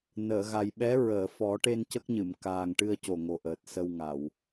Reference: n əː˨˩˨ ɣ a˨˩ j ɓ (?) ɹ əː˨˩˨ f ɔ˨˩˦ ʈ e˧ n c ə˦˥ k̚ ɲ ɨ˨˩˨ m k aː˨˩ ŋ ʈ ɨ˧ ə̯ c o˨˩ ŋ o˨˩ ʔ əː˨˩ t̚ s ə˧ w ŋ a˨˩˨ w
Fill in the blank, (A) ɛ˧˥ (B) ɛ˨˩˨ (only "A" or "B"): A